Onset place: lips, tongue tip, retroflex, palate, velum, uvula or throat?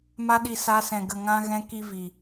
lips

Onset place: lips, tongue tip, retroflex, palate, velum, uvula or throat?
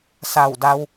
tongue tip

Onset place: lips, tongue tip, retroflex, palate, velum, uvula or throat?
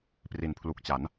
lips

